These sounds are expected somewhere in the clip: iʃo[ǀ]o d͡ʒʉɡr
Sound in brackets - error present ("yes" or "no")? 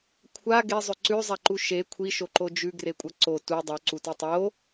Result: yes